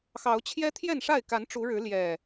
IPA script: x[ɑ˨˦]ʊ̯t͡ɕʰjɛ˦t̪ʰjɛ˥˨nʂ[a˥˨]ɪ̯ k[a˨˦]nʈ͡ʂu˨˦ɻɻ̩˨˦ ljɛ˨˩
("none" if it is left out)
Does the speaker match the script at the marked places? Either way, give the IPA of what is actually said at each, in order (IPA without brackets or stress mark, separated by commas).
ɑ˨˦, a˥˨, a˨˦